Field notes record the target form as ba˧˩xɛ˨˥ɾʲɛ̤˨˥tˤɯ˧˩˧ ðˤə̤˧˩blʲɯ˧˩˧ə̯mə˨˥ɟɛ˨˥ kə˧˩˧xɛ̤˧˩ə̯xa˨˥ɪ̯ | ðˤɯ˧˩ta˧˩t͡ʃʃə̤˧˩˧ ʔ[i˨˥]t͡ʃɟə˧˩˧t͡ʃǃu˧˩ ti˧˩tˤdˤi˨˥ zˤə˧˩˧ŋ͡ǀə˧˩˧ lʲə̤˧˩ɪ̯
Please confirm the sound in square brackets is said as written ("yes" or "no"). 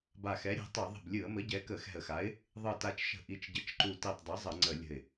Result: yes